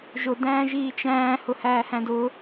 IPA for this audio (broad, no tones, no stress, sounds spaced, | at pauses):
ʒ ʊ d æ̃ː ʒ iː t͡ʃ æ̃ː h ʊ h æː h æ̃ d ʊ